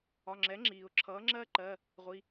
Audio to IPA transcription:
ɒ˩˧˩ ŋ͡ǁ ɛ˩˥ ŋ͡ǁ iː˩ ʊ̯ ǁʰ ʌː˩˥ ŋ͡ǁ ɜ˦˥ ǃ ɜ˩˧˩ | ʁʷ i˩˧˩

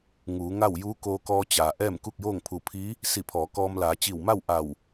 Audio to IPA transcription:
ŋ uː˩˧ ŋ a˥˨ w j uː˧˥ k oː˧ k ɔː˧ t͡ɕ aː˩ ʔ ɛː˥˨ m k u˥˨ k̚ j oː˥˨ ŋ pʰ u˧˩ pʰ i˧˥ | s i˧˩ pʰ ɔː˩˧ k ɔː˧ m l aː˩˧ t͡ɕ i˧˩ w m a˥˨ w ʔ a˧˩ w

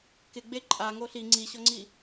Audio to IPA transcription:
k ɪ ɡ͡b e ǃʼ a ŋ o ɬ i ŋ͡ǀ i ɕ ɔ ŋ͡ǀ i

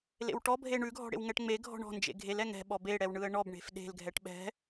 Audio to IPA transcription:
l ḛ w ʈ ɔ bʱ e ɳ ʉ ɡʱ ɔ̤ ɽ ḛ w ŋ ɛ ʈ ŋ͡m e ɡʱ ɔ̤ ɳ ɔ̤ n d͡ʒ ḛ ɡʱ e l ɛ ŋ ɛ̤ ɓ ɔ b e ɽ ɛ w ɳ ɯ ə̯ ɳ ɔ b ɳ e̤ f ɗ e̤ l ɡʱ ɛ ʈ ɓ ɛ̤

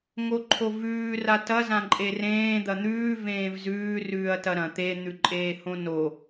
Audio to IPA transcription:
ŋ o ǃʰ o v ʉː r a t ɐ z ã ǃʼ e r ẽː d̪ ɐ n̪ ʉː v ẽː v z ʉː r ʉː ɐ̯ t ɐ ɾ ɐ̃ t̪ e n̪ ʉ ǃʼ eː h õ n o

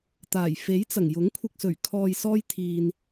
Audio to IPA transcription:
t̪ aː˨˩ j f e˨˥ j t͡s ɐ˨˩ ŋ j ʊ˨˥ ŋ kʷʰ ɪ˧ k̚ s ɵ˨˩ ɥ kʰ ɔː˨ j s ɔː˧ j t̪ʰ iː˨ n

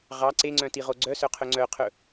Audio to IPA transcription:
ʁ ɑ ǀ e ŋ͡ǀ œ̃ t i ʁ o ɡ͡ǀ œ s œ qʰ ɵ ŋ͡ǀ œ qʰ ɵ

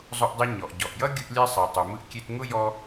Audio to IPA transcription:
zˤ ʊ˧ ʔ dˤ ɯ˧ ɲ ɔ˩ ʔ ɟ ɔ˩ ʔ j ʌ˥ ɡʲ ɯ˧ ʔ lʲ ɛ˧ sˤ e˩ tˤ u˩ m ɯ˧ ʔ kʲ e˧ t ŋ ʊ˥ j ɔ˧

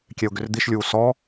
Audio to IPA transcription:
kʲ ɛ ʊ̯ ɡ ʏ r d̪ i ʃ lʲ uː s ɔ

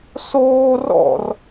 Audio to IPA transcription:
s oː r ɔ̰ r

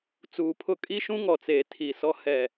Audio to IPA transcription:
t͡s uː˨ pʰ ʊ˦ kʼ i˦ ʃ ũ˦ ŋ ɔ˨ t͡s eː˨ tʰ i˨ s ɔ˦ h ɛ˨

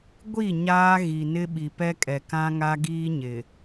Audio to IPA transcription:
ɡʷ i˦˨ ɲ aː˦ ɣ i˨ n ɪ˦ ɓ i˨ p ɛ˦ kʼ ɛ˨ k ã˦ ŋ a˦ ɡ iː˦ ɲ ɪ˨

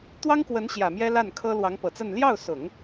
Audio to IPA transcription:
t̪ w ɑ˥ ŋ k w ə˧˥ n ɕ j ä˨˩ m j ɛ˥ l a˥˩ n kʰ ɤ˥ l w ɑ˧˥ ŋ p ɤ˨˩ t͡s ə˥˧ n l j ɑ˥˩ ʊ̯ s ʊ˨˩˦ ŋ

